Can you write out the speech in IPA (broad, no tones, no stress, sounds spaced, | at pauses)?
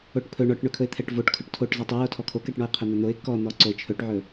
o ʈ pʰ ɵ ɳ ɔ ʈ ɳ ɵ kʰ ɵ ɪ̯ t̪ʰ ɛ ʈ v o ʈ kʰ ɵ ʈ tʰ o ʈ z ɔ tˤ ɵ j o tʰ ɔ kʰ o k ɛ ʈ ɳ ɔ ɪ̯ qʰ ɵ n̪ ɵ n̪ o ɪ̯ k ɔ n̪ ɔ ǀ o ɪ̯ t͡ʃʰ ɵ ʈ ʕ ɵ